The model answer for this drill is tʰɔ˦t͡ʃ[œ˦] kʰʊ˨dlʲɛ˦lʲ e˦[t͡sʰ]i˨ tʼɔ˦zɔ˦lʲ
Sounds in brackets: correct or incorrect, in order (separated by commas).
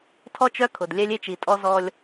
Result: correct, incorrect